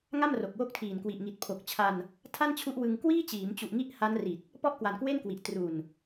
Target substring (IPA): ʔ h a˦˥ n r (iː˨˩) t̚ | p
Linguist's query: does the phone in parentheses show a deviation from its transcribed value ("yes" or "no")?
yes